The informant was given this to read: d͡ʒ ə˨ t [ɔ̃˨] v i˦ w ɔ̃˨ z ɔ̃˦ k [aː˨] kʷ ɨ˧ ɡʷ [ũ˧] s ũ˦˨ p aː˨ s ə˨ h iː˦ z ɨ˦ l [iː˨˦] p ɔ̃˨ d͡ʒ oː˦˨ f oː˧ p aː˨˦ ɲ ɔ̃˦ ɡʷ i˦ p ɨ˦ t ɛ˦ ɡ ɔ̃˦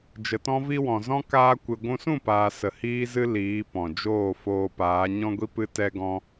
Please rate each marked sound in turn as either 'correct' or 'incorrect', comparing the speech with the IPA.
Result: incorrect: ɔ̃˦, incorrect: aː˦, correct, correct

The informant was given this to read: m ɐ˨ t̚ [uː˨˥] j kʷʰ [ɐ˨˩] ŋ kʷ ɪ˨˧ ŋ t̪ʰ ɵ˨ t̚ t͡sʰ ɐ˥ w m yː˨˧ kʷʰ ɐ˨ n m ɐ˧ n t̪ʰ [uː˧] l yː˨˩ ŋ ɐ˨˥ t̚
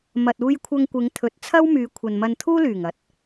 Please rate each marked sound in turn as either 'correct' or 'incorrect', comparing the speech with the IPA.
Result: incorrect: uː˧, incorrect: ɐ˧, incorrect: uː˥

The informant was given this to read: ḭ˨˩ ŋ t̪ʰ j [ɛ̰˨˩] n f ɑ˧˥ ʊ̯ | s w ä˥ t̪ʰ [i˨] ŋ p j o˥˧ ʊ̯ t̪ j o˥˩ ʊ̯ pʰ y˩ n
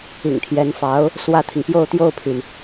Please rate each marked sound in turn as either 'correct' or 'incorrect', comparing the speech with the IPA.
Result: incorrect: ɛ˧˥, correct

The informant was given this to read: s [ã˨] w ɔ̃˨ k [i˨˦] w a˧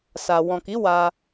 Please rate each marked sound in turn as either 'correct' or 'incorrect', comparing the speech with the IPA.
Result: incorrect: a˨, correct

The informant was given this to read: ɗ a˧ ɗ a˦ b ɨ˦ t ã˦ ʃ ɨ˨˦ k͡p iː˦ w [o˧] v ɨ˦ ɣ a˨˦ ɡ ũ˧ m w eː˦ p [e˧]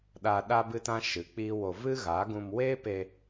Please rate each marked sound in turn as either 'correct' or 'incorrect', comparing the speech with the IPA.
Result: correct, correct

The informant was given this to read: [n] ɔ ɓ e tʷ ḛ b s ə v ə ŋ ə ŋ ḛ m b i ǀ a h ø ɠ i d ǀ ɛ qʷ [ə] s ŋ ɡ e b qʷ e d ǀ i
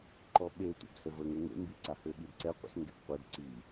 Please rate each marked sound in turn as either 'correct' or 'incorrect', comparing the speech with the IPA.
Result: incorrect: ǃ, incorrect: ə̰

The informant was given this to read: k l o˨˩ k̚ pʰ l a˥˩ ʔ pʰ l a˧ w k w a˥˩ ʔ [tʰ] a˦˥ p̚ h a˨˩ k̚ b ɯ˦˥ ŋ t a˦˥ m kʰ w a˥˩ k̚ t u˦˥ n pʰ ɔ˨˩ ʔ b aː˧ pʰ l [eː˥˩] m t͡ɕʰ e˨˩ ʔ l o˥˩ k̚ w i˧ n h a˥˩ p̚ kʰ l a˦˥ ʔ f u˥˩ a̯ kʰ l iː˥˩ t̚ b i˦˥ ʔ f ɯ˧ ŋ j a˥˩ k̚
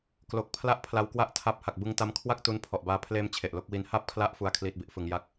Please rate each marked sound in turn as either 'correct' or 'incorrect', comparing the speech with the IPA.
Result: correct, incorrect: eː˧

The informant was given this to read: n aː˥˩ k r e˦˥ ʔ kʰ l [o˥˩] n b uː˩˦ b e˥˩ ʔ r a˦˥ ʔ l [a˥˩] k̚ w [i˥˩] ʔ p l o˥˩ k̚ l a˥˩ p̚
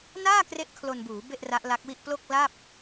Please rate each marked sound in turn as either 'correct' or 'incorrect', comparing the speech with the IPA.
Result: incorrect: o˧, incorrect: a˦˥, correct

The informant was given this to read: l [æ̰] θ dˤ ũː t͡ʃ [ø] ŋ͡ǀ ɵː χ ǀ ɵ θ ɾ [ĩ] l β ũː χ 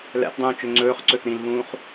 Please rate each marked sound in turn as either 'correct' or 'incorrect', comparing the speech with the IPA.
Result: correct, correct, correct

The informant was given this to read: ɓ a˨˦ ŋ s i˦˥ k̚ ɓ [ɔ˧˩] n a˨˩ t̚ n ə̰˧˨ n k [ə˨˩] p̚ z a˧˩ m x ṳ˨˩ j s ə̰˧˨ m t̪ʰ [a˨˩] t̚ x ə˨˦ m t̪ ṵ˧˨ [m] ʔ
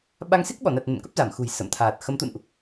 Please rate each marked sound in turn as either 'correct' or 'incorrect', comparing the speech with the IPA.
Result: correct, incorrect: ə˦˥, incorrect: aː˨˩, incorrect: n

